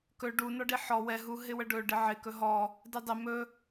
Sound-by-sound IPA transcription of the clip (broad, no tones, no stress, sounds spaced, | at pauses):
k ɵ ɖ u n ɔ ɖ i ħ ɔ w ɛ ɦ u ɦ ɪ w ə ɖ ɵ ɖ ɪ ʕ ɪ k ɵ ɦ ɔ | d ɪ dˤ ɪ m ɵ